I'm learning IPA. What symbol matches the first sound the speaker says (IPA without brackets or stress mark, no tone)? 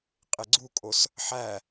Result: qʼ